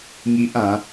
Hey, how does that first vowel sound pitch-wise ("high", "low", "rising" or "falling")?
high